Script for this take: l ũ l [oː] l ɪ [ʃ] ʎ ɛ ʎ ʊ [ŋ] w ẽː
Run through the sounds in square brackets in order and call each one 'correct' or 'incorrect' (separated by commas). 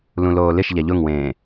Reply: correct, correct, correct